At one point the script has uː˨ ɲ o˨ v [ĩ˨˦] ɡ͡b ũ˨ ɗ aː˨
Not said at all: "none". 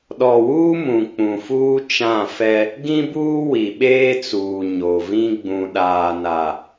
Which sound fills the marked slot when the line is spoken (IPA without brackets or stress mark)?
ĩ˦